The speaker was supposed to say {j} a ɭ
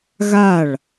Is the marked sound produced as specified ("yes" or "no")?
no